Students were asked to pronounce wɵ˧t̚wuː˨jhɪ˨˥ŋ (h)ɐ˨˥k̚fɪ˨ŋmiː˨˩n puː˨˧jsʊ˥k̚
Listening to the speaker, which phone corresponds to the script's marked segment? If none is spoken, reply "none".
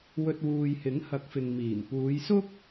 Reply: h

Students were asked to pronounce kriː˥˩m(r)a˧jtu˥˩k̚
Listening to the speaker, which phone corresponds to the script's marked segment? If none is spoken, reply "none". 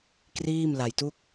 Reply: l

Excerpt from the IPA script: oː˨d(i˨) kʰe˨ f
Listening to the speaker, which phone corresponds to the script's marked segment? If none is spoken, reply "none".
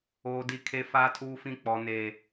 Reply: i˨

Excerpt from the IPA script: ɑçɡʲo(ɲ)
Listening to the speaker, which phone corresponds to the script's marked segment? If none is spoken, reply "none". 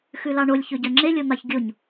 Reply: ɲ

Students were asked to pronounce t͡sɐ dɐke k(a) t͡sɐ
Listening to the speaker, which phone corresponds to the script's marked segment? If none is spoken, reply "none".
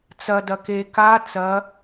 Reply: a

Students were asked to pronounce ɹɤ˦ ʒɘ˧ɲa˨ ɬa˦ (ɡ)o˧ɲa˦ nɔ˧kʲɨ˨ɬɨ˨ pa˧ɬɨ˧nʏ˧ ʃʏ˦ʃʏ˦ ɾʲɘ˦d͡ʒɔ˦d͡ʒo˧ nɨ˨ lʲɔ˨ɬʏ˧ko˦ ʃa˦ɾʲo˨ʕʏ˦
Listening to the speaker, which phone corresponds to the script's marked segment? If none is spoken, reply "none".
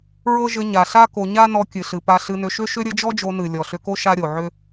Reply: k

